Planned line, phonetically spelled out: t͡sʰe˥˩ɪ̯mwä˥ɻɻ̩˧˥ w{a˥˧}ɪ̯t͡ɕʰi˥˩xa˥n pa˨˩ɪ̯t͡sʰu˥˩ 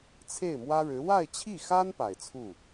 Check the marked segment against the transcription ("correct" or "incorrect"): correct